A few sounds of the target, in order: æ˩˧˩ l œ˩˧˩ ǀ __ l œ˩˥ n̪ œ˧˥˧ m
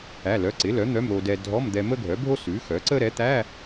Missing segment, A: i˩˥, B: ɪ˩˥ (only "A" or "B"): B